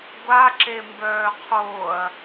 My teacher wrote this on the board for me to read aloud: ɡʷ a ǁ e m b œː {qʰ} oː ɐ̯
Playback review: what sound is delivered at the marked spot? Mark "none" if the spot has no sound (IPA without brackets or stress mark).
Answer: qʰ